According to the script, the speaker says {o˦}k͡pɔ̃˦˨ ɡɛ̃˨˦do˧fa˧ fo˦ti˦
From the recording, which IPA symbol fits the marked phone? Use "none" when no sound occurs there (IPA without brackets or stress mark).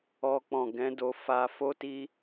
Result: ɔ˦